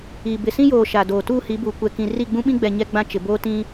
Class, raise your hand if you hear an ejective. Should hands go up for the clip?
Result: no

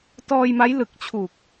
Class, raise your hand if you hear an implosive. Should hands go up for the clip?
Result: no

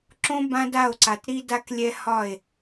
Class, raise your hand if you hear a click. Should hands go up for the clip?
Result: yes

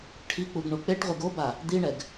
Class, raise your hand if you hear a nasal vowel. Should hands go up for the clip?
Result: no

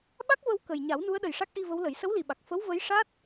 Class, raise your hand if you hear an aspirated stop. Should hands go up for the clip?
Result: no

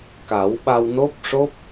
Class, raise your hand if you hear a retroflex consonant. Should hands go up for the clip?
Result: yes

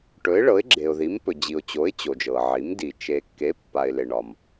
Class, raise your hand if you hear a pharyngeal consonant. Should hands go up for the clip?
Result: yes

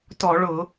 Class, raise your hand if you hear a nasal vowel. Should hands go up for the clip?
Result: no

